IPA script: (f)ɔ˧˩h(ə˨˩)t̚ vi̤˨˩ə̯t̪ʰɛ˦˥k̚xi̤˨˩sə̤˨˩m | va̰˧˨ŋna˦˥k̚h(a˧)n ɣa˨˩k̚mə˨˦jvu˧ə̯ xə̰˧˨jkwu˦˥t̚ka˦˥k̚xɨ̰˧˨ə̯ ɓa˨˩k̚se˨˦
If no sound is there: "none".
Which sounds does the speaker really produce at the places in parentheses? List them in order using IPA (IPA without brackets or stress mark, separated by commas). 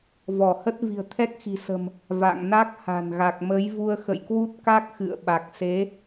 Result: v, ə˦˥, a̤˨˩